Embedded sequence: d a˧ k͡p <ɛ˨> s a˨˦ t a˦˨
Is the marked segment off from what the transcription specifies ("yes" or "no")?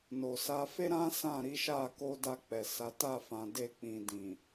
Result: no